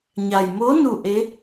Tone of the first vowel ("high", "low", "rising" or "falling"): low